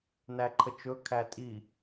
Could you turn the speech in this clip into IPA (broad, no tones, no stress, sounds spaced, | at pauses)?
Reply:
n æ ǃʰ ə t͡ʃ ɵ kʰ æ tʼ i